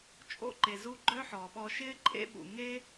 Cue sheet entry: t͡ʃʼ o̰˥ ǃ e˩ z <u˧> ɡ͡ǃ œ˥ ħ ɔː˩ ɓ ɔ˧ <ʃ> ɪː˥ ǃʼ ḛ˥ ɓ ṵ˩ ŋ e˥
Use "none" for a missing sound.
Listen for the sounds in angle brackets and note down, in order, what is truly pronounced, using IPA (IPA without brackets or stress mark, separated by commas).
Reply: u˧, ʃ